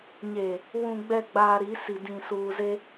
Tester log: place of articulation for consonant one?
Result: palatal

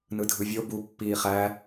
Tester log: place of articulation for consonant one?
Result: alveolar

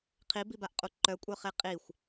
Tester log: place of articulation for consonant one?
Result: uvular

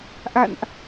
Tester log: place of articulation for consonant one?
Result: glottal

